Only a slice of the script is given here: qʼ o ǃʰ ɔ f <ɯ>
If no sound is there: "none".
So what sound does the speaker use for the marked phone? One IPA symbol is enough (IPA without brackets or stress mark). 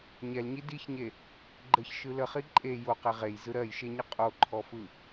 ɯ